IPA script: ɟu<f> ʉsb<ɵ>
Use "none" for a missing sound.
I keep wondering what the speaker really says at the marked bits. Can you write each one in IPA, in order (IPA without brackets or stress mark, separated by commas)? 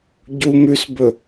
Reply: m, ɵ